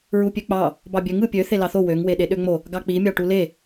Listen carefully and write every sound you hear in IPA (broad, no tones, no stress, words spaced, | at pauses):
ɹupʲøk͡pɑ | bɑbʲøŋ ɯpʲø θelɑθo wøŋ weɗeɗøŋ͡mo | ɡɑk͡pi mʲɑʈule